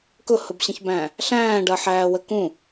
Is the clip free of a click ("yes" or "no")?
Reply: yes